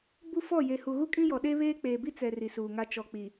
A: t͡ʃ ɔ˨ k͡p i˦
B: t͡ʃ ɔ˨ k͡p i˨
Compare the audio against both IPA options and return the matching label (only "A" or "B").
B